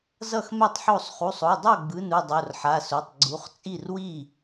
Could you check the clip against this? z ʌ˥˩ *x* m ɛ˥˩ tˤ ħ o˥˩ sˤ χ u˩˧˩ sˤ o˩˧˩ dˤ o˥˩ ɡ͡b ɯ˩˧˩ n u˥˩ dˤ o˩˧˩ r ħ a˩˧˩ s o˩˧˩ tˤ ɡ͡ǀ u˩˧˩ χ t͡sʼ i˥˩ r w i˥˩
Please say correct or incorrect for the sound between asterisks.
correct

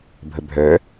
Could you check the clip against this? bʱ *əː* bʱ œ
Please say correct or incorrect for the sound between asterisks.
incorrect: ə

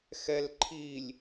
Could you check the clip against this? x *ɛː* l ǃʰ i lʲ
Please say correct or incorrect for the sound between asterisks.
incorrect: ɛ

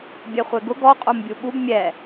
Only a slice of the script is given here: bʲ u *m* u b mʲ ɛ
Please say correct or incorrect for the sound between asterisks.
incorrect: ɓ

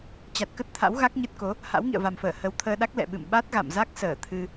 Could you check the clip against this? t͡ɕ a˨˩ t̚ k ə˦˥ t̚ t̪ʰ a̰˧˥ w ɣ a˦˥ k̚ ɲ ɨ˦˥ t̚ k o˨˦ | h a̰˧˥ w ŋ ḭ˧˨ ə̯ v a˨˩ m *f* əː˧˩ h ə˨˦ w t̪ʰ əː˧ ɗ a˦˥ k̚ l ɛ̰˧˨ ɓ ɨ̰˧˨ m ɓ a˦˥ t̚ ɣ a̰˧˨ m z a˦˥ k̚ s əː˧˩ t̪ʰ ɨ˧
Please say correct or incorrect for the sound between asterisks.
correct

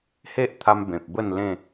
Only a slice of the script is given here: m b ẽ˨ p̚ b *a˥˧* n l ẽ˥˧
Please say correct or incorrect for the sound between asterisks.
incorrect: ə˥˧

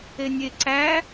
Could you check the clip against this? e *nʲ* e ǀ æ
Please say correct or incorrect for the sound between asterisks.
correct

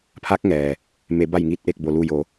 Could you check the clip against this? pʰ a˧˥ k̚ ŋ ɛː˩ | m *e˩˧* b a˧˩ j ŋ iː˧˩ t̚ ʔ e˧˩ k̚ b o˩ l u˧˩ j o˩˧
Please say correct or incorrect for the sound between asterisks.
correct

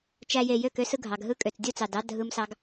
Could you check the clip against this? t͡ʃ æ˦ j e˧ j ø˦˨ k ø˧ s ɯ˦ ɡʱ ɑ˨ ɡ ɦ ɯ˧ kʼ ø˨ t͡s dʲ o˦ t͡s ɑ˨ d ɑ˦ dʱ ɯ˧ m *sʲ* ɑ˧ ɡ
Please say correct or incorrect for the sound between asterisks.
incorrect: s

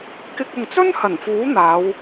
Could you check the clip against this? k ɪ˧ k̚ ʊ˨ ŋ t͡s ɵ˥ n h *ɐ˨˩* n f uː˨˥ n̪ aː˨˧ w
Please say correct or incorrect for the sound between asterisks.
correct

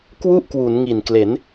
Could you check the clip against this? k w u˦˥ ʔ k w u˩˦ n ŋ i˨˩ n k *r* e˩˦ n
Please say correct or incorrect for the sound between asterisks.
incorrect: l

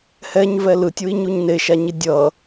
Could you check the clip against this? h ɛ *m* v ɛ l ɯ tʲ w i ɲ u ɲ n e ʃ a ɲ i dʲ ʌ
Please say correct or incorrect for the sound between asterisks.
incorrect: ɲ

